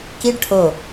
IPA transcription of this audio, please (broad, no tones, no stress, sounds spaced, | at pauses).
k i ɖ ʈʰ o